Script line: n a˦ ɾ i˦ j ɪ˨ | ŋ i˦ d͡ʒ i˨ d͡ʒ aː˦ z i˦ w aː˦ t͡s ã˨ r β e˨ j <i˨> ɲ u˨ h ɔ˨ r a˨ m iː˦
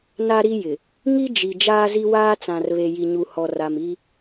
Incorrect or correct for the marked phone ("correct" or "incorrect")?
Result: correct